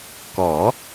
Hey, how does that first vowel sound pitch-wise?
rising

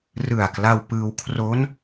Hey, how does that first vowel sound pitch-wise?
low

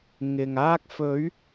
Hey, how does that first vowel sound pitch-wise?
low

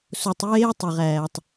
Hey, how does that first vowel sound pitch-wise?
low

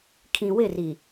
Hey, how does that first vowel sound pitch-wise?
low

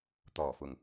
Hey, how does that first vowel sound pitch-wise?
low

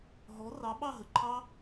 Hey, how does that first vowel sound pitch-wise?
rising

